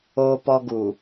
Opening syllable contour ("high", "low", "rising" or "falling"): high